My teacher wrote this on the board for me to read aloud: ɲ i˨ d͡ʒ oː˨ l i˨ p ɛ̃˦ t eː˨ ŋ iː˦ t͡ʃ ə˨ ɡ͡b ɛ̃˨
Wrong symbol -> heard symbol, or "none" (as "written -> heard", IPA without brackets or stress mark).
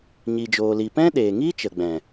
t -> ɗ